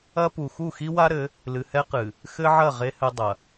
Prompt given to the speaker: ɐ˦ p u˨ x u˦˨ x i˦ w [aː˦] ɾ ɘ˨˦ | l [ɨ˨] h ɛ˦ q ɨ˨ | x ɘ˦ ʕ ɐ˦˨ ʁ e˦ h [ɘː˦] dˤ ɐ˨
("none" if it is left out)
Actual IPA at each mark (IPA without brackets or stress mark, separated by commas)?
a˦, ɨ˨, ɘ˦